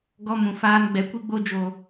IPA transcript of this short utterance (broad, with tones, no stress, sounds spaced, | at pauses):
ɡ ɔ˧ m ũ˨ f aː˧ n ɡ͡b ɛ˨ kʷ i˧ ɡ͡b o˧ d͡ʒ o˨